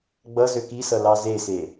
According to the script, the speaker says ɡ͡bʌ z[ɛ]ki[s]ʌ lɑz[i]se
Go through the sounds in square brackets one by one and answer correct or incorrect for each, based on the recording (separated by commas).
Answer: incorrect, correct, incorrect